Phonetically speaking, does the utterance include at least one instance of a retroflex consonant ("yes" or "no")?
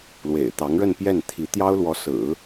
yes